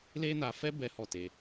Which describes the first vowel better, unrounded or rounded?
unrounded